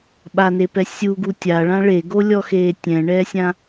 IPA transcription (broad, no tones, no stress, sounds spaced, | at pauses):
ɓ a n e p ɛ sʲ u ɡ u tʲ a ɭ ã ɭ e ɡ o lʲ ɔ x eː tʲ ɛ̃ ɳ ɛː sʲ ã